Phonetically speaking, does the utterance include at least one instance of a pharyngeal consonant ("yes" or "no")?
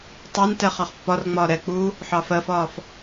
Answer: yes